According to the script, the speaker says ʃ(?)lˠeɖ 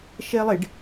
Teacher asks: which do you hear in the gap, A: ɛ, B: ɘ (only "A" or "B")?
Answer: A